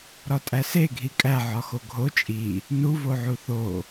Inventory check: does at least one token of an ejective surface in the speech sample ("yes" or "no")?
yes